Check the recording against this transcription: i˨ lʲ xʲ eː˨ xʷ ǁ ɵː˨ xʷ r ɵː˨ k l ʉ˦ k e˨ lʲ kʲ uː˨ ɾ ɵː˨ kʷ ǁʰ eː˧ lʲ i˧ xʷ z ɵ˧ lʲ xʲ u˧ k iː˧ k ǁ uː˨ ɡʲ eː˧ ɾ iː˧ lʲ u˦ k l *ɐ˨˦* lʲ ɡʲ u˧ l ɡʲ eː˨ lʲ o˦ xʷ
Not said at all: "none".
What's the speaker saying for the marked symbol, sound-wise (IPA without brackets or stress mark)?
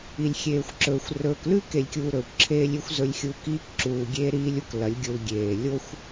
ɐ˨˦